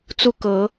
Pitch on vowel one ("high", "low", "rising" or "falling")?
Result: falling